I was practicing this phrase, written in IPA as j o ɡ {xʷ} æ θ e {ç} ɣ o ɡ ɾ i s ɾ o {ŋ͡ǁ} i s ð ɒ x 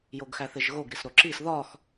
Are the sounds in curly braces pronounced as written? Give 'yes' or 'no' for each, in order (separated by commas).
no, no, no